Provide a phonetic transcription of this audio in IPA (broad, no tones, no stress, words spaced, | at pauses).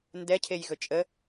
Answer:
ndɛ cʰejɣɵt͡ʃʼə